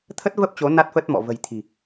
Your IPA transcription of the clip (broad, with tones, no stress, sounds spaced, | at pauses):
t̪ʰ ə˦˥ t̚ v ə˦˥ p̚ t͡ɕ o˨˦ n a˦˥ t̚ f ə˦˥ t̚ m ɔ̰˧˨ v ə̤˨˩ j t̪ʰ i̤˨˩